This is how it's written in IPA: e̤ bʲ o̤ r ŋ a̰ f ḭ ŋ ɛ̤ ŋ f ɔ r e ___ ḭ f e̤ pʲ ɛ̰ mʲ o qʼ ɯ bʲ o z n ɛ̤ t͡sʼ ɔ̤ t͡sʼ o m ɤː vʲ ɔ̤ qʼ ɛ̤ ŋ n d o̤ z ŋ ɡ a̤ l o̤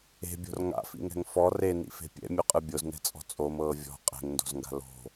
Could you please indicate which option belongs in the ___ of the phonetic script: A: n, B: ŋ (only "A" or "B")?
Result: A